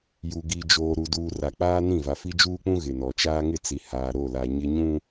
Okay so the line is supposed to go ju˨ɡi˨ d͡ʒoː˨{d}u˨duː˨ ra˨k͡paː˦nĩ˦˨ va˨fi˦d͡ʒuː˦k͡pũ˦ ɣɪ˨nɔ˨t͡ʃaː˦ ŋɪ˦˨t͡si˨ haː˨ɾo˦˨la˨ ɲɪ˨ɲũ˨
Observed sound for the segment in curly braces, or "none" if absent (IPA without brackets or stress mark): ɾ